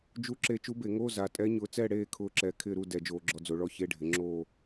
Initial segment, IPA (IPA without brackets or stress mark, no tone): d͡ʒ